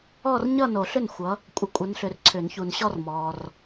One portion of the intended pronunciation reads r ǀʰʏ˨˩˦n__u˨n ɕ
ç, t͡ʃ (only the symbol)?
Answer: ç